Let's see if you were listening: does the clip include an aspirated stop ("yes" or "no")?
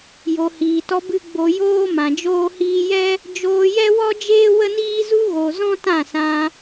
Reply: no